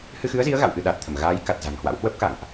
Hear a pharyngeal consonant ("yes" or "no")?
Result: no